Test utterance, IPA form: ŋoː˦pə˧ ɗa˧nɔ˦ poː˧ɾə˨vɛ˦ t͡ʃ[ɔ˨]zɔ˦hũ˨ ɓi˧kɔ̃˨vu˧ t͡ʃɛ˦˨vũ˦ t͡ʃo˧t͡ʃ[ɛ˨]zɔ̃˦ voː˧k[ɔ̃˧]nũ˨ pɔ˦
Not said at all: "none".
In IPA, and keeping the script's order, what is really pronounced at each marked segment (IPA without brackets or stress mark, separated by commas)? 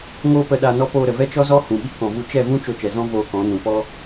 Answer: ɔ˦, ɛ˨, ɔ̃˨˦